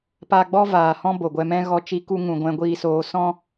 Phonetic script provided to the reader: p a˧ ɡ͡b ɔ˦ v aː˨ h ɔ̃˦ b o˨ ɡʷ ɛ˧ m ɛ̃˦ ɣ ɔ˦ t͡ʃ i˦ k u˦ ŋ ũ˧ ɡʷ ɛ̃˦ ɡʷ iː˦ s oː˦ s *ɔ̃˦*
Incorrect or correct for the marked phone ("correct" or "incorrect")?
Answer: correct